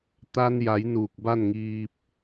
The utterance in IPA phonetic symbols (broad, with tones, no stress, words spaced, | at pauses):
t̪a˧n ja˩˧j nuː˧˩k̚ba˥˨nŋiː˧p̚